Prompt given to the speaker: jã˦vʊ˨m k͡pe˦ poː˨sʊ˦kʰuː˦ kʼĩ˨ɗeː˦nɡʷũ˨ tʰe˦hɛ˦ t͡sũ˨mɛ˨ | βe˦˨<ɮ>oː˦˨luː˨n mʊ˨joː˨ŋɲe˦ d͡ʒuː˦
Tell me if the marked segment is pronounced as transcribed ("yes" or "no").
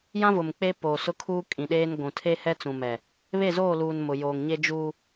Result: no